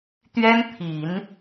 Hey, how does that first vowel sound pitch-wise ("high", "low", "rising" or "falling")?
high